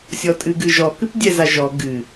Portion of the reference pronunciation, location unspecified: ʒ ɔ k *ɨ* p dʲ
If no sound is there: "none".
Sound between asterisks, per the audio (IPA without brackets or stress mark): ɨ